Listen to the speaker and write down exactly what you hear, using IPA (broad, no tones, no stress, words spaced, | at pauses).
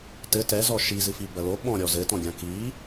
tɘ tɛzɔ ʃizɨfi bɐlo ɓɔ̃ɾʲɔ zɘtɔ̃ɡʲã ki